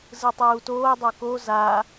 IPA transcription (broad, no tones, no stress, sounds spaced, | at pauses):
z ɯ tˤ uː t oː dˤ o k o z a